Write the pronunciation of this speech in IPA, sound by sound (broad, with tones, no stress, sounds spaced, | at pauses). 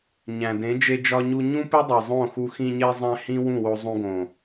ɲ æ̃˨ d ẽ˨˦ d͡ʒ e˧ d͡ʒ ɒ˧ ɲ u˧ ɲ ũ˦ p e˦ dˤ e˨ zˤ õ˦˨ x u˧ x ĩ˧ ɲ e˧ zˤ æ̃˧ h ĩ˦ w ũ˦˨ w o˧ zˤ ũ˧ ɡ õ˨